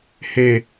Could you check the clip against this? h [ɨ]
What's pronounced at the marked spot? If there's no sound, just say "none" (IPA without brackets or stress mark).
e